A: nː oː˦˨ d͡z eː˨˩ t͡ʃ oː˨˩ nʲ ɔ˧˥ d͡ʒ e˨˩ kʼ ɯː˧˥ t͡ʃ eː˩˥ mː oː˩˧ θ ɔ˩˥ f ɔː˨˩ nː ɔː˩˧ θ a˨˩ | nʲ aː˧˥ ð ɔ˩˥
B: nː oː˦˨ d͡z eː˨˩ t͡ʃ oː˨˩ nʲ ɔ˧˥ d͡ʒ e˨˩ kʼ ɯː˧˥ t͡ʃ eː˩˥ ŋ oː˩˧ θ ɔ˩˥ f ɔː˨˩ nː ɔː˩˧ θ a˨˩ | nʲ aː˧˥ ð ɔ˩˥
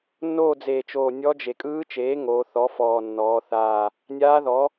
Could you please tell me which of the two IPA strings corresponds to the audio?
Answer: B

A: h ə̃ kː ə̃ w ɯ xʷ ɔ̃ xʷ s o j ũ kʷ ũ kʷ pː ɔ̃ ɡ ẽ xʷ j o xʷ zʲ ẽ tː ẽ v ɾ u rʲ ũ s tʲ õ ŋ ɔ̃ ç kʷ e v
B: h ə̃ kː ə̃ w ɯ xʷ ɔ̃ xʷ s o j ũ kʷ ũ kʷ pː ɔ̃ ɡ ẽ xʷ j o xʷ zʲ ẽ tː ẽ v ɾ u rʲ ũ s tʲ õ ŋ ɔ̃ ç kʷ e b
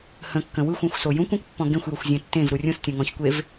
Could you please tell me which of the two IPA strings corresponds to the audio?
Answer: A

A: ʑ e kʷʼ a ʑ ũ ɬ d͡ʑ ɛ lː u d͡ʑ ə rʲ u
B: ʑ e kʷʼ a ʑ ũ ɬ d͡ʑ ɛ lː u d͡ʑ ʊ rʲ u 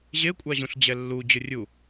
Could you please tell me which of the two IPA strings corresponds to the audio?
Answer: B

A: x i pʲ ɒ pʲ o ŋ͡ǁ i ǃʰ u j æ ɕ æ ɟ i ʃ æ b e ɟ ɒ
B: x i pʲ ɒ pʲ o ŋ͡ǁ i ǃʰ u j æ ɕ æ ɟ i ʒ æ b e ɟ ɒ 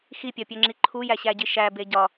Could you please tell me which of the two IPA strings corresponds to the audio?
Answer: A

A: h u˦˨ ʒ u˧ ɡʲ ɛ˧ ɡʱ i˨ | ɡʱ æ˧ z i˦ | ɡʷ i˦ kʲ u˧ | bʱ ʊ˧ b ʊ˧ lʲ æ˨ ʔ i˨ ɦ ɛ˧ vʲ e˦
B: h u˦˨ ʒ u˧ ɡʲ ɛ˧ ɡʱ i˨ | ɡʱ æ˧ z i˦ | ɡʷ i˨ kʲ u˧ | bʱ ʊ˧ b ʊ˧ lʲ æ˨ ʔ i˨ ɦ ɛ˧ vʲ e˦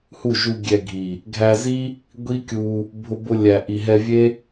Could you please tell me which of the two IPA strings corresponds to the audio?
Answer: A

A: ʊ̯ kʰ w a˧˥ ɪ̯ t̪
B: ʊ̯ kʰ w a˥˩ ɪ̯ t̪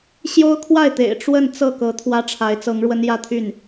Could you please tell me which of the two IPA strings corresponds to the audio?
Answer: B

